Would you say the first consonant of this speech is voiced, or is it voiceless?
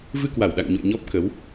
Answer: voiced